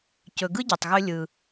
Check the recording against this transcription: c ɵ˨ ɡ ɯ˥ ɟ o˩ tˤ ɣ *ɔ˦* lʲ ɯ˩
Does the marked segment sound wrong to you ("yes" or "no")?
yes